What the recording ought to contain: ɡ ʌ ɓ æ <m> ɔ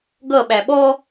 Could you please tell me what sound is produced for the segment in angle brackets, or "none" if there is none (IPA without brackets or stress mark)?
ɓ